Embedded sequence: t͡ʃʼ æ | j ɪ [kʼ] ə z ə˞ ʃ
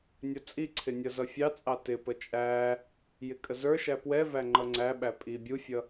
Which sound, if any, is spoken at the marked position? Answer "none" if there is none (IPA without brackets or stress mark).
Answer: kʼ